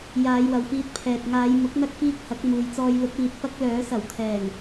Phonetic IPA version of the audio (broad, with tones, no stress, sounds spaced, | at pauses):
j aː˨˧ j w ɐ˨ w f iː˧ t̚ pʰ ɛː˨ t̚ ŋ aː˨˧ j m ʊ˨˥ k̚ n̪ ɐ˥ k̚ f iː˥ k̚ h ɐ˨˥ k̚ m uː˨ j t͡s ɔː˧ j l ʊ˨˥ k̚ w iː˨ t̚ p ɐ˥ k̚ l œː˨˥ s ɐ˨˩ w t̪ʰ ɛː˨˩ ŋ